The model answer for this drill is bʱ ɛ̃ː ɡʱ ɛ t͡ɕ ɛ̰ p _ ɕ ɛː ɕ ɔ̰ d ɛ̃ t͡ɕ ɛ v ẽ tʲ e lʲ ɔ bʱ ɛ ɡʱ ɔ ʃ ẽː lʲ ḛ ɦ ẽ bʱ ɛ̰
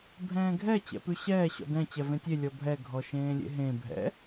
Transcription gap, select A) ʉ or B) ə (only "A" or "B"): A